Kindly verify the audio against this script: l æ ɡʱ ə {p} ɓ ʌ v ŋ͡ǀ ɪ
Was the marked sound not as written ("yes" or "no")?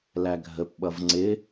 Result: no